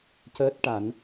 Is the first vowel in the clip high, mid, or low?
mid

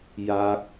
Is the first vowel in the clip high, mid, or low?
low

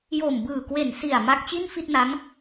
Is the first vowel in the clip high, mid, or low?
mid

